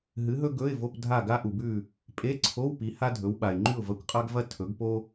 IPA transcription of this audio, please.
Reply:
ɦ ɨ˨˥ ɦ ɵ˥ ɡ ɵ˧˥˧ ɪ̯ v o˧˥˧ p dʱ a˥˨ ɡ a˥ ʔ u˨ b ʉ˥˨ | pʼ e˧˥˧ ǀʰ o˧˥˧ w p i˨˥ h a˥ dʱ ɵ˨˥ w ɓ a˨ ɪ̯ ŋ͡ǃ ʉ˥˨ ʊ̯ v ɐ˧˥˧ kʷ qʼ a˥ ɡ v ɐ˥ tʰ ɵ˨˥ ɡ p o˥

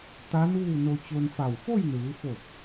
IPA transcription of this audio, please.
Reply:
t̪ a˧˥ n uː˥˨ n o˧ t͡ɕ o˧ n f a˧˩ w f o˥˨ j n ɯː˩˧ f o˧˩ p̚

